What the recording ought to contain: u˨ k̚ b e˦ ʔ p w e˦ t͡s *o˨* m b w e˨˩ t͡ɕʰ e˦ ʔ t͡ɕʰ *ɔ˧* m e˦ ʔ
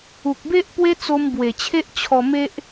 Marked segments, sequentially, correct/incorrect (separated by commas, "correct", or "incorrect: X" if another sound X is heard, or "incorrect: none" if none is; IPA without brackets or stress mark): incorrect: o˧, correct